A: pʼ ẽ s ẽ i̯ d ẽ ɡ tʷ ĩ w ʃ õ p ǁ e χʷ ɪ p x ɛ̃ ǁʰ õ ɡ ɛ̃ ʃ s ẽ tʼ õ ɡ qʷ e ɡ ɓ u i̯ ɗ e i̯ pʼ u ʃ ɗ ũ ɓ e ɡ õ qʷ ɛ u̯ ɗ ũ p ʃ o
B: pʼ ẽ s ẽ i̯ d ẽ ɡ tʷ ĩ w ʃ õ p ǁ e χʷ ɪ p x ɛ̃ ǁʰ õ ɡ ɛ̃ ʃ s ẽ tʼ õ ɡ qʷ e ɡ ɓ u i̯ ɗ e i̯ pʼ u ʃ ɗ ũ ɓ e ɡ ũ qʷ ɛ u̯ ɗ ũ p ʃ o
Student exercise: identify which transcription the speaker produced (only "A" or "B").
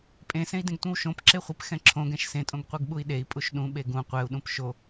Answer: B